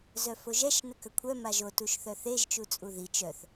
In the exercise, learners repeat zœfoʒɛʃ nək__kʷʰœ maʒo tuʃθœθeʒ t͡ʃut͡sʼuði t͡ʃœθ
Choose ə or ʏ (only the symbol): ə